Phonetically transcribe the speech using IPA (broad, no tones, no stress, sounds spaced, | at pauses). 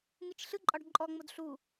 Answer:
ŋ ɯ t͡ʃ ɬ ɯ ǃʼ ɒ ɖ ǃʼ ɔ ŋ͡m o d ɬ u